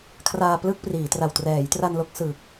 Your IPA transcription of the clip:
kʰ r aː˧ p l ɯ˥˩ k̚ p r iː˩˦ t r a˨˩ w t r ɛː˩˦ j t r a˧ n l o˦˥ k̚ s ɯ˨˩ k̚

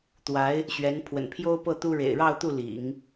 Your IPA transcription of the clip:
t̪ w a˧˥ ɪ̯ | ɕ ɥ ɛ˧˥ n pʰ w ə̰˨˩ n pʰ j o˥ ʊ̯ p ɤ˥˩ t̪ u˥ ɻ ḛ˨˩ ɪ̯ ɻ ɑ˥˧ ʊ̯ t̪ u˥˩ l ḭ˨˩˦ ŋ

